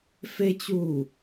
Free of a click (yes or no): yes